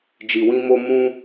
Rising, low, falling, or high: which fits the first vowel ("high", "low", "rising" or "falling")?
low